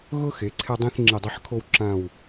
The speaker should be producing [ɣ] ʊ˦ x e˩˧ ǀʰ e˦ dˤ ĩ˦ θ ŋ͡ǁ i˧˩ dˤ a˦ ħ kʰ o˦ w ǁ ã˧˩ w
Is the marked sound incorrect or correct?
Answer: correct